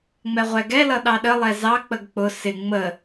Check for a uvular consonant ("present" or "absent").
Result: present